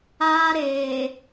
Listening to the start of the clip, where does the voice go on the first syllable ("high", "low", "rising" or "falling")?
high